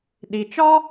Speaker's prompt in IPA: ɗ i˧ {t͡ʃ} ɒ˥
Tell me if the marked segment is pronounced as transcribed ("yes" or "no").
yes